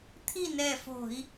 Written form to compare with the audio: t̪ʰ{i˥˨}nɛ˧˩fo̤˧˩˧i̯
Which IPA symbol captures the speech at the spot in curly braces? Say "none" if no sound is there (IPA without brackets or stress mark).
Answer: i˥˨